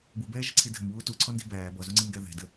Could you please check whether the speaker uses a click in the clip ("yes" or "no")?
yes